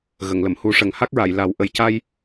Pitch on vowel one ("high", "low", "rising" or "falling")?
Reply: low